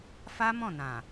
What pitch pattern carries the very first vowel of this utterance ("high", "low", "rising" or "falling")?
high